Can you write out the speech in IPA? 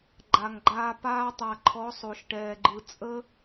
ɡ͡ǃa˨ŋɡ͡ǃaː˧ paː˧tˤa˨ ǃʰɔ˨˦sˤo˨ʃʈɛː˨ɡ͡ǃɯ˨ t͡sʼə˦

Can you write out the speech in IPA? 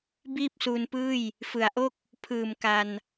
biː˥˩p̚suː˧npɯː˥˩j | fɯ˩˦a̯ʔo˥˩k̚ | pʰɯː˨˩m ka˧n

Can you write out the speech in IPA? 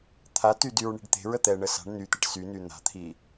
t̪ʰaty dyɹɳi̤ɖt̪e̤ɹə t̪ɛɳə sa̤ɳ nyt̪eʈ syny n̪a̤t̪ʰi

